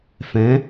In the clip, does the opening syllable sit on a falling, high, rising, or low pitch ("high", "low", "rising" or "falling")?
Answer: rising